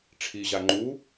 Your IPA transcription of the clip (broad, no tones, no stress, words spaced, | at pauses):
ʈ͡ʂʰiʑa ŋ͡ǃu